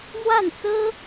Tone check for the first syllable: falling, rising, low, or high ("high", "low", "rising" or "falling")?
falling